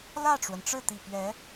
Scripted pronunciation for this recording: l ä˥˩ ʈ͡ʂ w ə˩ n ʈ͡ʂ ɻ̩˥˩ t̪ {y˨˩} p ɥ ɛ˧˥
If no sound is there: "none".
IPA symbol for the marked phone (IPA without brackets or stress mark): i˨˩